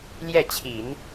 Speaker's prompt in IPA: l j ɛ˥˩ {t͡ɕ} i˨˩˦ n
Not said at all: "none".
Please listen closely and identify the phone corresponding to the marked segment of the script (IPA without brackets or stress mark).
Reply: t͡ɕʰ